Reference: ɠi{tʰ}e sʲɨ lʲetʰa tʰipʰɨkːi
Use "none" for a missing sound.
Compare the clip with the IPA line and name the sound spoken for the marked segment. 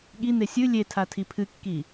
n̪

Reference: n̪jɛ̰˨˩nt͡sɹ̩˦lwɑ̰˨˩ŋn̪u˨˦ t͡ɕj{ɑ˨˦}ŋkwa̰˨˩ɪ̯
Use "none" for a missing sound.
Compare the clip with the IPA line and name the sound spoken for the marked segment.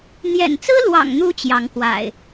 ɑ˨˦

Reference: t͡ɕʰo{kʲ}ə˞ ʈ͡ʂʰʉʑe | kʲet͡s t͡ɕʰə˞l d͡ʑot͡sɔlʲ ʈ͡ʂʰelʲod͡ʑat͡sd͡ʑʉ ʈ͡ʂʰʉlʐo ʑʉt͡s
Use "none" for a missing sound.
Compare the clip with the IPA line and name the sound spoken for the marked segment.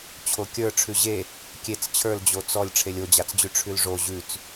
kʲ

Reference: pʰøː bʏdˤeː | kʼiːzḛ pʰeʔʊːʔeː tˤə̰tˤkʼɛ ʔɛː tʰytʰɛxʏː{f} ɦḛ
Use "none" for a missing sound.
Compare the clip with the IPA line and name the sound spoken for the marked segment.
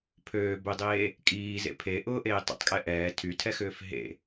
f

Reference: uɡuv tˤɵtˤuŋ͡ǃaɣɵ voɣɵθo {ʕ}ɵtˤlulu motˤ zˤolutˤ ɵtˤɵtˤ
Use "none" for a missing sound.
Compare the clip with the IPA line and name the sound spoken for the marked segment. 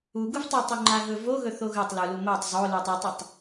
ɣ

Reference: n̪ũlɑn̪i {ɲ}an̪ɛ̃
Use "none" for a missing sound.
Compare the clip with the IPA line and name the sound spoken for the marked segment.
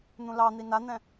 n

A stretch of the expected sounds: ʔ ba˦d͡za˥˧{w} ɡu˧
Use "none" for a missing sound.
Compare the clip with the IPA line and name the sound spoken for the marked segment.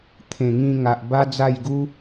j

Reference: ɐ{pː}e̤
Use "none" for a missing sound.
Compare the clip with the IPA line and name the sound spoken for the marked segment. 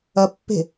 pː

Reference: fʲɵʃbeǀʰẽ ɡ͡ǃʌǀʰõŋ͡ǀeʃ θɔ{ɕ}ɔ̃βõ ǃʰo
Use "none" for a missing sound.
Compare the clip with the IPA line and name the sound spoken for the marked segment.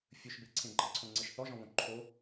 ʒ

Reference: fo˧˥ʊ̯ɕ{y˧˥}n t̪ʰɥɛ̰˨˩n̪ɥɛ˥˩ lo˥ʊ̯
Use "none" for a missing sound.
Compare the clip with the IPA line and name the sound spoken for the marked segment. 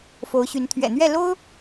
y˧˥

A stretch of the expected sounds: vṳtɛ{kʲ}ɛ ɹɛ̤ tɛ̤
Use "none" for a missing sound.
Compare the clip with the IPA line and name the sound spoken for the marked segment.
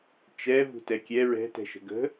kʲ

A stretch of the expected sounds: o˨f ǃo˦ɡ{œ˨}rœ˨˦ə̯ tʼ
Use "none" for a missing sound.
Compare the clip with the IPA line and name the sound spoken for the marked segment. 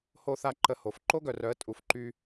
œ˨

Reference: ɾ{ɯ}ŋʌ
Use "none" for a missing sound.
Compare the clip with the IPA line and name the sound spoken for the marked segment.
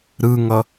ɯ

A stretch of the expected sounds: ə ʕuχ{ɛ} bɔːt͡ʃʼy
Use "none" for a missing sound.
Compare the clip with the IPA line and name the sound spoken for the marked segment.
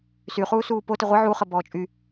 ə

